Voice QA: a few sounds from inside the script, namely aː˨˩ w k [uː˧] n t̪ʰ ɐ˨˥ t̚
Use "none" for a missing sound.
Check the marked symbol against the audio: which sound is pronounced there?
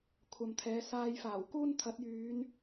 uː˥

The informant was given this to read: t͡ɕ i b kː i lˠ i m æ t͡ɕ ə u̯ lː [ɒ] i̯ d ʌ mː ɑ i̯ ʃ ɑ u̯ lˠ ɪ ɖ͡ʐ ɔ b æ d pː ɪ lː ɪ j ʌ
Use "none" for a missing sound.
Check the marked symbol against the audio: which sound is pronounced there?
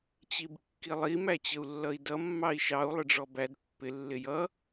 ʌ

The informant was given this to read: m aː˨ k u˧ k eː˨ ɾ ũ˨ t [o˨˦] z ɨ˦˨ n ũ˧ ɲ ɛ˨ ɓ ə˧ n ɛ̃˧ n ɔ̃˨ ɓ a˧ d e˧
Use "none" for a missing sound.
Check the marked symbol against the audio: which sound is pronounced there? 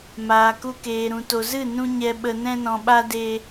o˨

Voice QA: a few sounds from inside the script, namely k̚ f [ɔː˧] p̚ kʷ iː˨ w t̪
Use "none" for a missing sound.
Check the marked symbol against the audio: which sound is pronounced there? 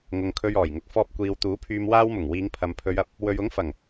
ɔː˧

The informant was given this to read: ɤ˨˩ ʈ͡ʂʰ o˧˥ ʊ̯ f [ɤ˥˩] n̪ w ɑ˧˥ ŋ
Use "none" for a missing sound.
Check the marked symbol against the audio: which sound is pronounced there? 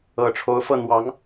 ɤ˥˩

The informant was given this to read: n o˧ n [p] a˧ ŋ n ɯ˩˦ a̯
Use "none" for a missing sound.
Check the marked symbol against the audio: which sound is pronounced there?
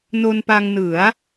p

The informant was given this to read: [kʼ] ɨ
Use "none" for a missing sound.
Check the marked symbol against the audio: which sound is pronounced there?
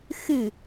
x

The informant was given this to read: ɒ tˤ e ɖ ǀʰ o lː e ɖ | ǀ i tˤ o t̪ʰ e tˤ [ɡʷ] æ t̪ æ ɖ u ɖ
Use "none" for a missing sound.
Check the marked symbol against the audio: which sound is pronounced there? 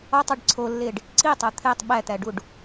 ɓ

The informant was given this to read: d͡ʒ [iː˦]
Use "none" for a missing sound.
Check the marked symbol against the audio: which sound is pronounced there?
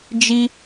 i˦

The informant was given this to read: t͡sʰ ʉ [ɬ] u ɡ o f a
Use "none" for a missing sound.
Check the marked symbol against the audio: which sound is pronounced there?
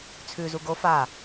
z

